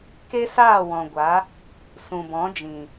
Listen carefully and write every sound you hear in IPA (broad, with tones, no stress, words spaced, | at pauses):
ke˦saː˦˨ wɔ̃˨ɡʷa˨˦ | sũ˨bɔ̃˨˦d͡ʒĩ˨